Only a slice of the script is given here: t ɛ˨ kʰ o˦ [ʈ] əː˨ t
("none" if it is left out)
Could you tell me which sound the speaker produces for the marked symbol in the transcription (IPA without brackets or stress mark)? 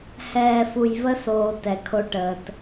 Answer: ʈ